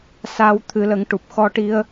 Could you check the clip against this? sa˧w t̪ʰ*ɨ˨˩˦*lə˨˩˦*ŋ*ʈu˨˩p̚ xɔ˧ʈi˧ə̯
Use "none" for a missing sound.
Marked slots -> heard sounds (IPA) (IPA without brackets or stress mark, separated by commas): ɨ˨˩˦, ŋ